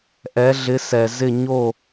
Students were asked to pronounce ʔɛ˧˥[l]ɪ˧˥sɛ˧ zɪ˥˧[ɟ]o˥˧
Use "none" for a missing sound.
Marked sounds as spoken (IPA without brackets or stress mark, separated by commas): ɮ, ɲ